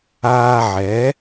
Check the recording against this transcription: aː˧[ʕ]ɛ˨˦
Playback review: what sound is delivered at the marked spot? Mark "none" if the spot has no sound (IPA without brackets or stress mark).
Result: ʕ